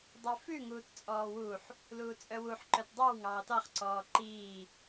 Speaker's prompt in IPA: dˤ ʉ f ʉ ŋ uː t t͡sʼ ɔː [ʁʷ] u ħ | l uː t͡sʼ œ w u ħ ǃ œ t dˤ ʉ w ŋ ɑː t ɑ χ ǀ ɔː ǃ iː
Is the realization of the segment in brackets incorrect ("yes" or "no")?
yes